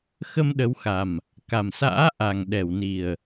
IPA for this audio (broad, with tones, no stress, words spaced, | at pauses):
xə˧mɗə˨˦wxa˨˩m | ka˨˩msa̰ː˧˥ ʔa˨˩ŋ ɗɛ˧˩wni˨˩ə̯